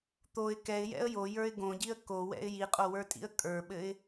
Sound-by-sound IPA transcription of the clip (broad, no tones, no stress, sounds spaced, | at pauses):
t̪ o ɪ̯ k ɛ ɪ̯ j ɛ̰ ə̯ j o j ə˞ ɪ̯ ɡ õ ɟ i ə̯ k o w ɛ̰ ɪ̯ j i qʼ o w ə˞ tʼ ḭ ə̯ kʼ ə˞ ɓ ɘ ɪ̯